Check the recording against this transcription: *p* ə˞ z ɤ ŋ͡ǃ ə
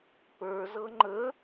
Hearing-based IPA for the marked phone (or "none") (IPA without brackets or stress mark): p